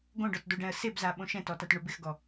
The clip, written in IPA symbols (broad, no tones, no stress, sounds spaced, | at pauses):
ɡ õ ɖ ɔ t d o ɖ ɛ̃ ə̯ s e b z a ɓ õ ʃ ɛ̃ t ɔ t a t ɳ ʊ b ɪ x ɡ ɔ